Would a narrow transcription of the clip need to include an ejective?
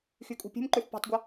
yes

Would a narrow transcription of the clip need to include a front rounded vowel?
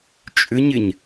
yes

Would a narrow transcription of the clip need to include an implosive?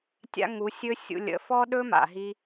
yes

